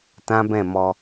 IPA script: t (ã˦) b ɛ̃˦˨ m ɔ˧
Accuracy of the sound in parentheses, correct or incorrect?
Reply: correct